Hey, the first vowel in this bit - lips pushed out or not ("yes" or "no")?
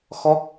yes